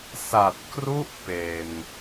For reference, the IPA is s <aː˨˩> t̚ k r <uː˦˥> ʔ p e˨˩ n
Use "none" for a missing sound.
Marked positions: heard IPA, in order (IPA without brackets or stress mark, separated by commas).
a˨˩, u˦˥